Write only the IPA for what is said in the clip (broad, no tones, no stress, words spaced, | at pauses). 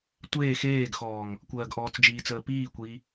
tʷeː xeːɡxɔːŋ | kʷɜːɡʔɔːt͡sd͡ʒiːt͡səː piːkʷiː